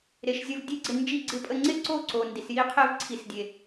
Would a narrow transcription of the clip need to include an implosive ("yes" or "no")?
no